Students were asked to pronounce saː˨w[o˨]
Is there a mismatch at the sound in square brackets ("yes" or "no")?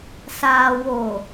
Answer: no